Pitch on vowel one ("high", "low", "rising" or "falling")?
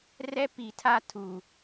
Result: high